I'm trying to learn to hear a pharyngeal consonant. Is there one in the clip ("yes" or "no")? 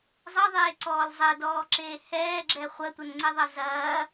no